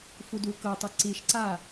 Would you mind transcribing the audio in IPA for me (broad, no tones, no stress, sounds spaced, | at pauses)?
f u d u k ɤ tˤ ɤ ǀ i ʃ ǀ a